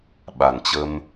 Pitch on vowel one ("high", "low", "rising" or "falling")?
low